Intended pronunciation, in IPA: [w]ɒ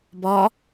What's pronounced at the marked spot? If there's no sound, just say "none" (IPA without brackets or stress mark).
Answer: b